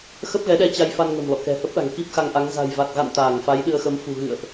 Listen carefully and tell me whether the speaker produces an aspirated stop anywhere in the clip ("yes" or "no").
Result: no